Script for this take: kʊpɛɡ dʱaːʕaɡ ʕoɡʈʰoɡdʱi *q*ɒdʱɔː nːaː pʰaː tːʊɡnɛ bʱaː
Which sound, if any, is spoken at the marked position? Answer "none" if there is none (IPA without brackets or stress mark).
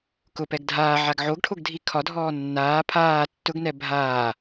kʰ